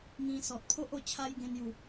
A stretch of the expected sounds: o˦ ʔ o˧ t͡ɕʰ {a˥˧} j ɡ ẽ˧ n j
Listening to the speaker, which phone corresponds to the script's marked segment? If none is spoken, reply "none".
a˦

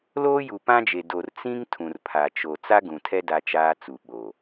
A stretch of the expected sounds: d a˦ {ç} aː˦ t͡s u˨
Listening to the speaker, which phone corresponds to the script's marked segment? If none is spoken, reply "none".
t͡ʃ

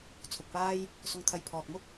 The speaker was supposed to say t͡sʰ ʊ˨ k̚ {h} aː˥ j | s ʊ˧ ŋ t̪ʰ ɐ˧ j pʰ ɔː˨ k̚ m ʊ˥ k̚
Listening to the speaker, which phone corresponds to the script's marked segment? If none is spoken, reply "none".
p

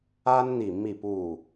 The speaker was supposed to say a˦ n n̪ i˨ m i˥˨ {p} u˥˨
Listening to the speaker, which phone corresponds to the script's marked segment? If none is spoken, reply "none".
p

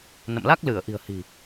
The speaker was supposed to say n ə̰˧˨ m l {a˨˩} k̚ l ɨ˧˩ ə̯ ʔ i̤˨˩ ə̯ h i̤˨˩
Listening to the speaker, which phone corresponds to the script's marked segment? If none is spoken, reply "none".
a˦˥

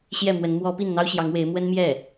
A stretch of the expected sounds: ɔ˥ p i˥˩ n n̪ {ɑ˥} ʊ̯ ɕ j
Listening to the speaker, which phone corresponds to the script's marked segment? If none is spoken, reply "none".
ɑ˥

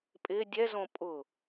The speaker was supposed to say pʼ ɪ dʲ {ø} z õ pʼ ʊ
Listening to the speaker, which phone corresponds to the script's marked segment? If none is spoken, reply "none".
ɛ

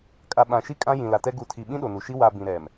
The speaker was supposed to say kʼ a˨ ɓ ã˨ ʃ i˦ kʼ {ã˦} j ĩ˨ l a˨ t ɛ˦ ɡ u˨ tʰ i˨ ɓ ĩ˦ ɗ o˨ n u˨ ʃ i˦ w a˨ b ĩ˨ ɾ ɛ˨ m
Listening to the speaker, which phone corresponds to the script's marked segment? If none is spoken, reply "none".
ã˦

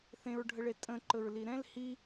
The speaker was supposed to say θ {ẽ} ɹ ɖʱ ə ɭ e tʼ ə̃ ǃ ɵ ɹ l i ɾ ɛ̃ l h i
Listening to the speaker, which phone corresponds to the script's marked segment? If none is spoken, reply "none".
ẽ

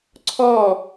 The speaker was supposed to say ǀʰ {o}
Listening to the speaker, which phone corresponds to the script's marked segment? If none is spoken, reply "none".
ɔ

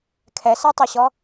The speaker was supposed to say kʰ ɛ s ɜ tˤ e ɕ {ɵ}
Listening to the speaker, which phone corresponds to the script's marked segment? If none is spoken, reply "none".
ɔ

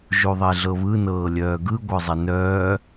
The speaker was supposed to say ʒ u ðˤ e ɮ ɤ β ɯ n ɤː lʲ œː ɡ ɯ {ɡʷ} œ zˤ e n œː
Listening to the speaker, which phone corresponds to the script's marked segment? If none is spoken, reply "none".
ɡʷ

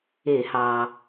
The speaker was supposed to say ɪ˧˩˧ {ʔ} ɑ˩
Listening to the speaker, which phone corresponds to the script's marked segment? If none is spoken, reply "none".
h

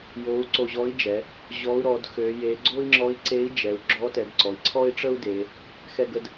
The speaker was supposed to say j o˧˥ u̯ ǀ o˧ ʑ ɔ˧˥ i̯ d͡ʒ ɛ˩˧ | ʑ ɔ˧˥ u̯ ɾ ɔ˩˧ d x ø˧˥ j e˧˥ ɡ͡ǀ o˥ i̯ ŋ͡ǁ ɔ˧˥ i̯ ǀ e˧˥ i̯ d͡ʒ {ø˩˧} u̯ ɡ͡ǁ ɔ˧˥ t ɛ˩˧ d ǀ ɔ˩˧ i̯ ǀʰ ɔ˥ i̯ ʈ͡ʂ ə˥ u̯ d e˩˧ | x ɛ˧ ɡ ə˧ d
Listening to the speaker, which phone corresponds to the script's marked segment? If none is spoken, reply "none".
ɛ˩˧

